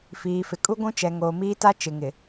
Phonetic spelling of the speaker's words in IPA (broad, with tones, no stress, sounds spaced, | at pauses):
f iː˨ f ɪ˨ kʼ u˦ ɡʷ ũ˦ t͡ʃ ɛ˨ ŋ oː˨ m iː˦ t a˦ t͡ʃ ɪ˨ ŋ ɪ˨